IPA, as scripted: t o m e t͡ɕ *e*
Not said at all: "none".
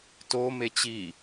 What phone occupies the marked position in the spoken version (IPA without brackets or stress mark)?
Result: i